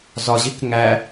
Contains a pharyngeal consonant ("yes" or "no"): no